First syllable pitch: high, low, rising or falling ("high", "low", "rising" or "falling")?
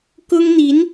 high